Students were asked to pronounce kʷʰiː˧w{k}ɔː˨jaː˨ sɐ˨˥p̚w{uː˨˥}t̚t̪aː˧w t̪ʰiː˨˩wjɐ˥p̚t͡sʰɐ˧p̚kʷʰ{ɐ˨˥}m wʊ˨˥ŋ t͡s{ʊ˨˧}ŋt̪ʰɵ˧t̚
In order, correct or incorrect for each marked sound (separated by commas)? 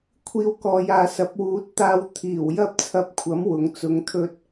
correct, correct, correct, correct